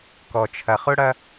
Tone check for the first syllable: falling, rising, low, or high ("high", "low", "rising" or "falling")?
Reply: low